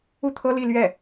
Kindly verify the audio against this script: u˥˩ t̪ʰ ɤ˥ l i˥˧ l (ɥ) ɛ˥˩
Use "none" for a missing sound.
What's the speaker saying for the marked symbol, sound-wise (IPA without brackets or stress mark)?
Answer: ɥ